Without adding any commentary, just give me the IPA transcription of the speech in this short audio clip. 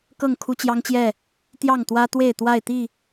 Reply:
k ɤ˥˨ ŋ kʰ u˦ t͡ɕ j ɑ˦ ŋ t͡ɕ j ɛ˥˨ | t̪ j ɑ˥˨ ŋ t̪ w ä˦ t̪ w e˥˨ ɪ̯ t̪ w a˥˨ ɪ̯ t̪ i˥˨

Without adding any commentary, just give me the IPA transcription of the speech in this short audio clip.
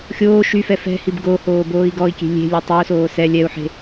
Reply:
xʲ oː ʃ y f ɛ f ɛ̤ h i b ɡ o h oː b oː i̯ ɡ ɔ i̯ kʲ e̤ lʲ e̤ lʲ o tˤ i u̯ s oː s ɛ lʲ ɛ u̯ ħ e̤

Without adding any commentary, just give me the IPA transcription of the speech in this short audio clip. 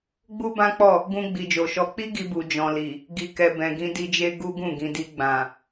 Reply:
ɡ͡b u˦ b ã˦ k͡p ɔ˦˨ | ɡ ũ˧ ɡ͡b i˨ d͡ʒ o˨ ʃ ɔ˧ k͡p i˦ ɡ i˧ b u˨ d͡ʒ ɔ̃˨ l i˨ | ɡ i˨ k ɛ˨ b ɛ̃˨ ɡ ĩ˧ d i˧ d͡ʒ e˦ ɡ u˦ ɡ ũ˦˨ ɡ ĩ˨ d i˧ ɡ͡b ã˨

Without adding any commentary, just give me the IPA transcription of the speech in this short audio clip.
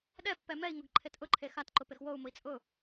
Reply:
ɗ ɛ pː ɛ m ɛ i̯ ŋ ʊ ɡ ǃʰ e t ʔ ʊ ǃʰ e x a t ǃ ʊ p e x w o u̯ m ʊ i̯ t͡sʼ ʊ

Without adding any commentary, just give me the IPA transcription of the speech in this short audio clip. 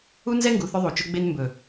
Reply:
u˦ n z ɛ˦ ŋ ɡ u˨ θ ɵ˦ ðˤ u˨ t͡ʃ ʊ˦ ɡ͡b e˦ n m b ɵ˨

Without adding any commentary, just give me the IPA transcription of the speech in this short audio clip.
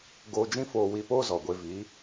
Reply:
ɡ oː˧ d͡ʒ ĩ˦ f oː˧ w i˧ p oː˦ z ɔ˨ ɡʷ e˧ v i˨˦

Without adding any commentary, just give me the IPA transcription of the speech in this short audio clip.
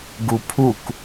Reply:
ɡ u pʰ u k

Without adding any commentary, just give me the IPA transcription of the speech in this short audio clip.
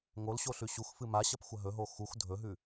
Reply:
ŋ o l ɕ o ɬ ʉ ɕ u x f ɨ m a ɕ ɐ p xʷ ɐ ɦ ɵ ɦ o x u x dʱ ɵ ɦ ʉ

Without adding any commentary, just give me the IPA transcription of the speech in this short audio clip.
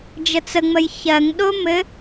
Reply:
d͡ʒ ə t͡s ə ŋ͡m ə j ç ɜ ŋ ɗ o m ɘ

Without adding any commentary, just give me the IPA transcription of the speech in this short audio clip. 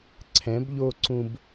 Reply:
ǀʰ ɛ̃˩˧ b ʎ o˧ ǀ ũ˧ b

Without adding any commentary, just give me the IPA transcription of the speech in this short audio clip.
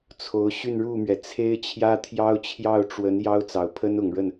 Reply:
t͡sʰ o˧˥ ʊ̯ ɕ y˥˧ n ɻ u˥˩ m ɥ ɛ˩ t͡sʰ e˥ ɪ̯ t͡ɕʰ j ä˥ t̪ʰ j ɑ˥ ʊ̯ t͡ɕʰ j ɑ˥˩ ʊ̯ ʈ͡ʂ w ə˧˥ n j ɑ˥ ʊ̯ t͡s ɑ˨˩ ʊ̯ pʰ ə˥ n ʊ˨˩ ŋ ɻ ə˥˩ n

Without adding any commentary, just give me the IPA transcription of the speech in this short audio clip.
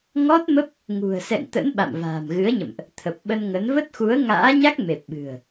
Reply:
ŋ ɔ˦˥ t̚ m ə˦˥ p̚ | ŋ ṳ˨˩ ə̯ s ɛ̰˧˨ ŋ t̪ ə̰˧˥ n ɓ a̰˧˨ m v a̤ː˨˩ m ɣ ɨ˨˦ ə̯ ɲ ə̰˧˨ m ʔ | t̪ʰ ə˨˩ p̚ ɓ ə˧ n ŋ ə˨˦ n v ə˦˥ t̚ x u˨˦ ə̯ ŋ a̰ː˧˥ ɲ a˦˥ k̚ m e˨˩ p̚ ɓ ɨ̤˨˩ ə̯

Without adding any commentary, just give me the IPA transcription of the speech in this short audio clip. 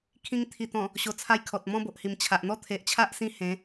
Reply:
kʰ ĩ˧ ŋ t̪ʰ i˨˩ t̪ ɔ̃˨˩ | ɕ o˨˩ t͡sʰ a˧ j kʰ ɔ˨ t̚ m ɔ̃˦ b o˨ ʔ h i˨˩ m t͡ɕʰ a˨ ʔ n̪ ɔ˦ t̪ʰ e˨ ʔ t͡ɕʰ a˦ ʔ s ĩ˦ h ẽ˨˦

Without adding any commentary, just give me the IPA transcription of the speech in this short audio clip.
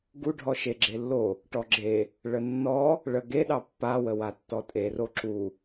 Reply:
ɡ u ɖʱ ɔ ʃ e ɡ͡ǁ e lː o | ʈ ɔ ɡ͡ǁ e | ɭ ə nː ɔ | ɭ ə ɡ e ɗ ɑ pː a w ə w a tː ɔ tʼ e r o ǁ u

